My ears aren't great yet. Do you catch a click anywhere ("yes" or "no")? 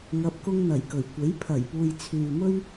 no